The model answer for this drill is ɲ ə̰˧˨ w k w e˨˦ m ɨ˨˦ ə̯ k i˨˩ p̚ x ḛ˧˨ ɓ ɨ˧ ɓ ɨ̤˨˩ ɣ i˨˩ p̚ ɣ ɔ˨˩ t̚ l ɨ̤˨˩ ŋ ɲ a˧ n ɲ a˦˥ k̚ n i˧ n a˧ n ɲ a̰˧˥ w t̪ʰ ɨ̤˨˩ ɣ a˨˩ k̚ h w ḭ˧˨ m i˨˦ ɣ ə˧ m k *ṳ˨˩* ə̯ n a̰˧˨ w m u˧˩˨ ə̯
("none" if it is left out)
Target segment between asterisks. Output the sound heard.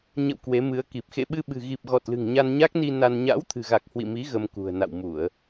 ṳ˨˩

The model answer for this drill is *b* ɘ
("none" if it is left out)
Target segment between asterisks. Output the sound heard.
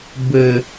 b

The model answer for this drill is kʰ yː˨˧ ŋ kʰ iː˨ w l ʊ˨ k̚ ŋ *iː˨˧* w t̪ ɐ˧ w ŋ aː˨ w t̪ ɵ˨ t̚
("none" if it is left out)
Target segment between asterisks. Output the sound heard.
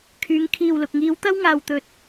iː˨˧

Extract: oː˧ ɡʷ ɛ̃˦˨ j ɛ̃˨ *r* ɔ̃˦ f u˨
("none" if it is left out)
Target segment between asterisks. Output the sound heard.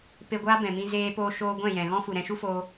ɣ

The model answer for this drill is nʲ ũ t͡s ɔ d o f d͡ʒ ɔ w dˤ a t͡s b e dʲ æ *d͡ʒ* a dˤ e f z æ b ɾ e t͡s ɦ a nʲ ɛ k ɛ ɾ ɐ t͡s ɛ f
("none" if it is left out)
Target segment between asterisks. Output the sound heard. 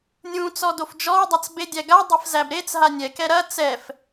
ɡ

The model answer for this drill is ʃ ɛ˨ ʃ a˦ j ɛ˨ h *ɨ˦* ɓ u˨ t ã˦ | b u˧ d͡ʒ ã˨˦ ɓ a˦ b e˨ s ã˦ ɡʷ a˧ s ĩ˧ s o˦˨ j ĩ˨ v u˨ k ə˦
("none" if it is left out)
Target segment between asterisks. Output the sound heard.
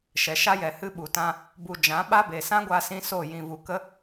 ɨ˦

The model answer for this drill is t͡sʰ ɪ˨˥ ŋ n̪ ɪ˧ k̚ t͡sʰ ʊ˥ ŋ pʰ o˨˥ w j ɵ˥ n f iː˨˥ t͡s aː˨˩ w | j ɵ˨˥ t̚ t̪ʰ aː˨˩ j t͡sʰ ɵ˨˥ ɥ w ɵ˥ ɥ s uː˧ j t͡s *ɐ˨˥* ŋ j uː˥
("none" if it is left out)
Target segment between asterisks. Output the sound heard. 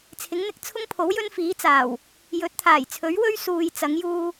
ɐ˨˥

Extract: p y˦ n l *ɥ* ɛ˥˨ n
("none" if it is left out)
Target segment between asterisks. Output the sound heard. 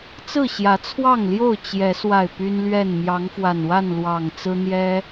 ɥ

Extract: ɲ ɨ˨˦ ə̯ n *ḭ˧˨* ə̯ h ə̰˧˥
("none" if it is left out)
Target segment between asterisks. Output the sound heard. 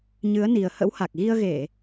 i˨˩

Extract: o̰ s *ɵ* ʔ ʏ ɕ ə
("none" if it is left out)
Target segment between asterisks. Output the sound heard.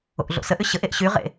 ə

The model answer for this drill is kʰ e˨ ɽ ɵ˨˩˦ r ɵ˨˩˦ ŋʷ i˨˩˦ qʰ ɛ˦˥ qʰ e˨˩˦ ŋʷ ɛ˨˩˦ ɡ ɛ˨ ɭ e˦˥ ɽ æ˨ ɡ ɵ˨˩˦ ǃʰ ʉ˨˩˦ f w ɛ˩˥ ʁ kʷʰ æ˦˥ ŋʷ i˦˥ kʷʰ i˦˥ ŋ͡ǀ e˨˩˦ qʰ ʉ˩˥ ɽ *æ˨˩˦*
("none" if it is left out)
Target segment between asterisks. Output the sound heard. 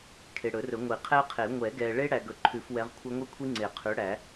æ˨˩˦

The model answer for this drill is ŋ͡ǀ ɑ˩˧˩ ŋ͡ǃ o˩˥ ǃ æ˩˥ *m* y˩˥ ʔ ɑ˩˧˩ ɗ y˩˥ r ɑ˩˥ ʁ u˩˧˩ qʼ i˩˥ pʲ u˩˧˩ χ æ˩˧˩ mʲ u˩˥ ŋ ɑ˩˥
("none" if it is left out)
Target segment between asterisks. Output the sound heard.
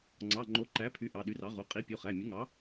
pʰ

